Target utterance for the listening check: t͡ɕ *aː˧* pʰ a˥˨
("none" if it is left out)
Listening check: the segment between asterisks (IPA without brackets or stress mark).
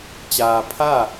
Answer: aː˧